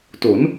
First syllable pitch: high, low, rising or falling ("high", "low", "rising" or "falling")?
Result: rising